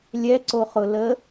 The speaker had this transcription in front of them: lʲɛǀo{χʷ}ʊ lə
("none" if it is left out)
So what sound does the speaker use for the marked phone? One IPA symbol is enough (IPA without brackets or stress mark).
χ